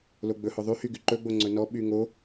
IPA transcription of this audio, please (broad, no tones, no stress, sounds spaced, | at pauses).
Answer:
l o ɡ͡b ɵ h ɵ ðˤ y h y ɡ y ǃ ɵ ɡ͡b o ŋ͡ǀ ɵ n ɔ ɓ y ŋ o